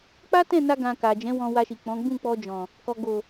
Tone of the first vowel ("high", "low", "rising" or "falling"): high